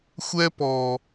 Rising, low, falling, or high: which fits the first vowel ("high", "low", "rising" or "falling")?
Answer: high